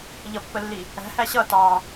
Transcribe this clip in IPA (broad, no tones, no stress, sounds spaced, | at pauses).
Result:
ʎ ʌ pː ə lː i | æ̤ h æ ɕ ʌ t ɑ